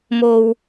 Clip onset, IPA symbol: m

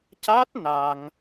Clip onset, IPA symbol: c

